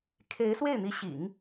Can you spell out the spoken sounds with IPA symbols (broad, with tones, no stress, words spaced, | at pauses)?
kʰe˧˥ɪ̯swe˥˩ɪ̯n̪i˧˥ɕḭ˨˩˦ŋ